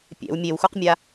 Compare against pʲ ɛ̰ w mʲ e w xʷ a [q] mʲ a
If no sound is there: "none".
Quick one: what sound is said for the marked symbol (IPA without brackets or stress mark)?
q